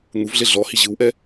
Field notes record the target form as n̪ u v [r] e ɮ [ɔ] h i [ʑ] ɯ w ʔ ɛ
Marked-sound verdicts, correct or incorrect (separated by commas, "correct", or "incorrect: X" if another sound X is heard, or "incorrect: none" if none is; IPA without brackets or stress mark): incorrect: ɮ, correct, correct